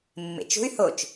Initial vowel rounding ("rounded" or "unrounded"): unrounded